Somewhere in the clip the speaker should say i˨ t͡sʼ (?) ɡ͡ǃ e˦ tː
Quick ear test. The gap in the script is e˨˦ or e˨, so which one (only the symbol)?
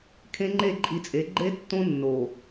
e˨˦